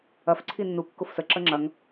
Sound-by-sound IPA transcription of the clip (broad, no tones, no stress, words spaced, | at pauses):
ɐf ǀʰinːu kːʊfsə ǁəŋ͡ǁɐŋ